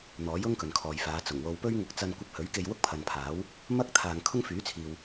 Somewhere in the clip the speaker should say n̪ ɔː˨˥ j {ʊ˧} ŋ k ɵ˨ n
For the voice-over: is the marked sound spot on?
no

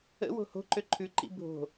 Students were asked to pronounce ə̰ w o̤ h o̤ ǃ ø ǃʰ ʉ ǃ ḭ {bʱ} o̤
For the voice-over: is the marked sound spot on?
yes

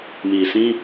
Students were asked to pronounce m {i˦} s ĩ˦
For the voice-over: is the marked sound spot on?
no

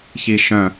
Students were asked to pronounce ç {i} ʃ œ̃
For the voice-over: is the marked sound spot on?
yes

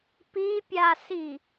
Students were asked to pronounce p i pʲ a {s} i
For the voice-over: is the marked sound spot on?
yes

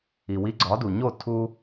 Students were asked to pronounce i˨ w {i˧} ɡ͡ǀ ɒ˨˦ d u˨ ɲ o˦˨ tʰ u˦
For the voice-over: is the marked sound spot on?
yes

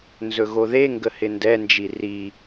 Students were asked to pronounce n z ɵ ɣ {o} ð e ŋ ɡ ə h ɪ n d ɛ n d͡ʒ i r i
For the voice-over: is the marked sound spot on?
yes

